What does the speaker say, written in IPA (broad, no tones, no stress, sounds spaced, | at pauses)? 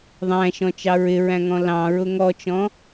ðˤ æ̃ ʃ ɔ̃ t͡ʃ ɑ ɹ ɪ ɹ æ̃ ŋ ɔ̃ l ɑ̃ ɹ ʊ ŋ ɔ t͡ʃ ɔ̃